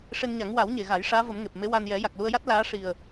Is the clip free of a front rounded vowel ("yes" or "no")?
yes